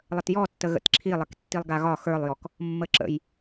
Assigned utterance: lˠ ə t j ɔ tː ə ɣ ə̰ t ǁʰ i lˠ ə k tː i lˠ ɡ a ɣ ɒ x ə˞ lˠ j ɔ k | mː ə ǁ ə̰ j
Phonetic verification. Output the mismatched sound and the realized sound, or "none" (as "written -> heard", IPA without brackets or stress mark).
none